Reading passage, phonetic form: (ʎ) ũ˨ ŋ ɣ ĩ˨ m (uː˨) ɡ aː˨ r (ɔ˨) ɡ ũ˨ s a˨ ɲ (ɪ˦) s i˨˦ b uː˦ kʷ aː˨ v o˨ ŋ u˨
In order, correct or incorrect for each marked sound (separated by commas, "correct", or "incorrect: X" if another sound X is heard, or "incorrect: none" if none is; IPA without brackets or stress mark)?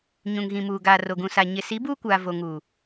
incorrect: ɲ, correct, incorrect: o˨, incorrect: ɪ˨